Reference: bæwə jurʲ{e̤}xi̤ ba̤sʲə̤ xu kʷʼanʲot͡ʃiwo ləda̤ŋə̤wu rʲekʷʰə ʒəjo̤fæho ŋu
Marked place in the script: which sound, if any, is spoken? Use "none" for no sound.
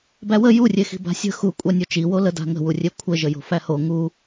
e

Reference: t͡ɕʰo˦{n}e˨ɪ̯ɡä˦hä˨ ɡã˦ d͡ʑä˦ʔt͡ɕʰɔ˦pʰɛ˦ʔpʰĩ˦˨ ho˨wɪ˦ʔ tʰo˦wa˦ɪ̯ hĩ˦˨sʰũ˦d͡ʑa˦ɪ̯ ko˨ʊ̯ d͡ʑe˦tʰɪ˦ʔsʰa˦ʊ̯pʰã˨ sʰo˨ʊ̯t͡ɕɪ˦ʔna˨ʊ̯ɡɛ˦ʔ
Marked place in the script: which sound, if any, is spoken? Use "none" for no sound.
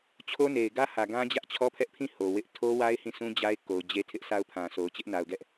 n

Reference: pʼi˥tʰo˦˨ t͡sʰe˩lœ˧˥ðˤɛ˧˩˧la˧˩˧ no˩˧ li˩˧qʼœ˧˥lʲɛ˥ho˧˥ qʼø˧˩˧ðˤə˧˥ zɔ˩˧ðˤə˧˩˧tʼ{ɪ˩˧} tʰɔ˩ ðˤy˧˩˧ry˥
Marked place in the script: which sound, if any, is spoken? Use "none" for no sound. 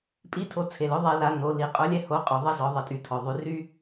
y˩˧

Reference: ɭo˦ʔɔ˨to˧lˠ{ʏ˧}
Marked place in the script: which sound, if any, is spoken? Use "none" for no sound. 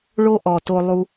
u˧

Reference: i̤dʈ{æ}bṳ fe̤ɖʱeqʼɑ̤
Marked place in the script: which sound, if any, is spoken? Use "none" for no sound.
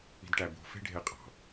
æ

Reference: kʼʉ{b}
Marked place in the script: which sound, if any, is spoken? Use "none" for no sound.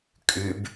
b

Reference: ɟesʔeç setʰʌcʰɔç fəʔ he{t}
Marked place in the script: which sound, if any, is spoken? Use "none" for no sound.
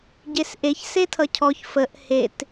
t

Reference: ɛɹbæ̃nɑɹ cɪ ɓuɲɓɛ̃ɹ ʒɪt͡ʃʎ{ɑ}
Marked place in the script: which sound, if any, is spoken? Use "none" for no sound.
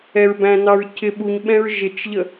ə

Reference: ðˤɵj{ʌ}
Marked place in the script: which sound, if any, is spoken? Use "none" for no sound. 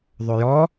ɔ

